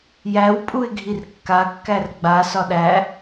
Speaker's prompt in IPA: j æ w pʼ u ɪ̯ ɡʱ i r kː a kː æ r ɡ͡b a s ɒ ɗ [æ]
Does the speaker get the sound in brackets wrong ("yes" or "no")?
no